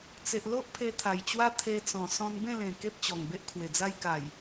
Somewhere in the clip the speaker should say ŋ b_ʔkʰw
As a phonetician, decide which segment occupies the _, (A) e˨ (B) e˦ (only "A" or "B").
B